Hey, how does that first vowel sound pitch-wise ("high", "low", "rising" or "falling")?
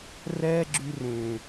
high